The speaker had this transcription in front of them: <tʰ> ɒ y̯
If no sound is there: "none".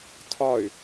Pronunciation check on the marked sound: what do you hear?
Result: tʰ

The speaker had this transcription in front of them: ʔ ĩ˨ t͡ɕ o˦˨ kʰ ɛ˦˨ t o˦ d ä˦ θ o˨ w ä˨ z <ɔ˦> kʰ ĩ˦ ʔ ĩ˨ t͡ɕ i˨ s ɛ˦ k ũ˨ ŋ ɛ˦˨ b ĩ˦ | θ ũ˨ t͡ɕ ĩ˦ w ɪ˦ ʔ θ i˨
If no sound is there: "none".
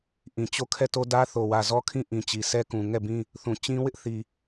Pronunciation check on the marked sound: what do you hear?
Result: ɔ˦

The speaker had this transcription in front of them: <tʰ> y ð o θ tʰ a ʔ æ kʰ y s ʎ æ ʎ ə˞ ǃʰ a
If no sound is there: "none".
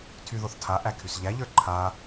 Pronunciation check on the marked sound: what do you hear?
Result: tʰ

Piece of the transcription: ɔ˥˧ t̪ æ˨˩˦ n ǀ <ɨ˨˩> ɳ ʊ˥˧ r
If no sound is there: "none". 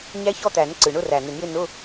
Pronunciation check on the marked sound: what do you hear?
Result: ɨ˨˩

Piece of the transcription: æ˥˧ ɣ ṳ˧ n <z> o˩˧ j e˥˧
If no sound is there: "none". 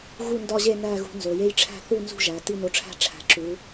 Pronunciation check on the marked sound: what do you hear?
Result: z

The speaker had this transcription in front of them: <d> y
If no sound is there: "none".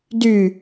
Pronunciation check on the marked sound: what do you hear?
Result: d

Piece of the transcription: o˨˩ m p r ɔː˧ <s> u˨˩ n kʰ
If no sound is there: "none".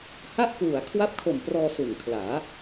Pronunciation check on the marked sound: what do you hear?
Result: s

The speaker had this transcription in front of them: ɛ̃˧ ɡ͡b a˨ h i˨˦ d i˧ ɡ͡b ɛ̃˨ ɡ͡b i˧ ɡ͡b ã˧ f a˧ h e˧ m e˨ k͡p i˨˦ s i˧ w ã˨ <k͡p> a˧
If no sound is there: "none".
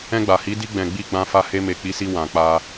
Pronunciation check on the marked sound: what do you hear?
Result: k͡p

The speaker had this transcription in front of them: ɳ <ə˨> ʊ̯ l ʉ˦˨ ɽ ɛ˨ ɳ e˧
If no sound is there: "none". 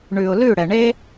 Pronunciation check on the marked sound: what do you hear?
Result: ʉ˨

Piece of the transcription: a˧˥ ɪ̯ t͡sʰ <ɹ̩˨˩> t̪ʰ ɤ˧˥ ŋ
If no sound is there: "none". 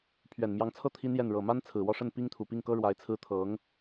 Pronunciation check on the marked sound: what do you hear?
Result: ɹ̩˥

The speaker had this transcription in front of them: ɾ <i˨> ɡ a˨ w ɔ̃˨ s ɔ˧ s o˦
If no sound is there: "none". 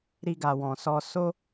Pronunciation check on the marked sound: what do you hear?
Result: i˧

